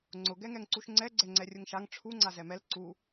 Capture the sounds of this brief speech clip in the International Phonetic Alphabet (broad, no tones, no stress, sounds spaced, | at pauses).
ŋ͡ǀ ʊ ɡ ɛ ŋ ɛ ŋ ǀ u ʃ ŋ͡ǀ ɛ ɡ͡ǀ ɛ ŋ͡ǀ ɛ rʲ ʊ ŋ ʃ a ŋ ʈ͡ʂʰ u ŋ͡ǀ a z ɛ m ɛ l ǀ u